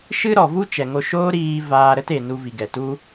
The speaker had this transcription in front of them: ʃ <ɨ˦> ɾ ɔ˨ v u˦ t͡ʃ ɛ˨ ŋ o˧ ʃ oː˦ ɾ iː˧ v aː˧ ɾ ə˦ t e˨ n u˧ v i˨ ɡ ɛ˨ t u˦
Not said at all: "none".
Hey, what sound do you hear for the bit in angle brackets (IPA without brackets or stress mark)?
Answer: ɨ˦